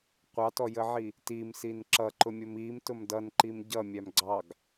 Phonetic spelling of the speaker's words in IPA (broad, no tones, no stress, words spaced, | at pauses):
qʷɑtɔjəʕi | timsin ǁʌǃʊmʲʊm imtʊm dʌnǃim ɟʌmʲæm ɡ͡ǀɑɡ